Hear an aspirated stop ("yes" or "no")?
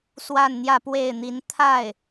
yes